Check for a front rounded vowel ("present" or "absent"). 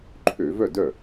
present